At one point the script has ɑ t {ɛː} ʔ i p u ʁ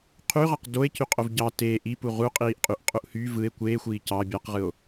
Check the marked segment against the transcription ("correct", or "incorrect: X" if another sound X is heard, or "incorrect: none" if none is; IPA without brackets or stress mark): incorrect: eː